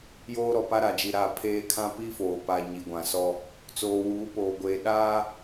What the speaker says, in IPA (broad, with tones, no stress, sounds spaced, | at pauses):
j oː˦ ɾ ɔ˨ p a˦ ɾ a˨ d͡ʒ i˨ ɾ a˦˨ pʰ eː˦ kʰ ã˦ p i˦ f oː˨ p a˨ ɲ i˨ ɡʷ ã˨ s ɔ˦ | t͡s oː˨ w uː˨˦ p oː˨ ɡʷ eː˨ ɗ aː˦